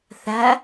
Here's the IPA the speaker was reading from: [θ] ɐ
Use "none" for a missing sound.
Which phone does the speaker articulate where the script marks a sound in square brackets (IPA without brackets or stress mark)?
θ